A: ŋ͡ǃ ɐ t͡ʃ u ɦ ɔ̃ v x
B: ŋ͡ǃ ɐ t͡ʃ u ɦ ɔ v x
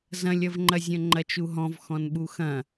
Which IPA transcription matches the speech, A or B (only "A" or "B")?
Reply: A